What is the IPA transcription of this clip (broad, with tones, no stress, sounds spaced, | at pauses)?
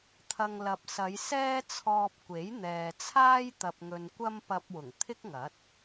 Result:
t̪ʰ ɐ˨ ŋ l ɐ˨ p̚ s ɐ˨˧ j s ɛː˥ t͡sʰ ɔː˧ p̚ kʷ e˨˥ j n̪ ɛː˨ t͡sʰ aː˥ j t̪ ɐ˨ p̚ ŋ ɵ˨ n kʷ ɐ˥ m p ɐ˧ p̚ w ʊ˨˩ ŋ t̪ʰ ɪ˥ k̚ ŋ ɐ˨˥ t̚